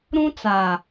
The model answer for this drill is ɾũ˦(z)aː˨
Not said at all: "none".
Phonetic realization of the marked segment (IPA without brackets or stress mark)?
t͡s